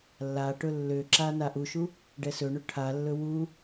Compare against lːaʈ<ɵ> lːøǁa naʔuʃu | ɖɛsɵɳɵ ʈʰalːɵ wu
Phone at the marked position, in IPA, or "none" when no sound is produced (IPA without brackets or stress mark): ɵ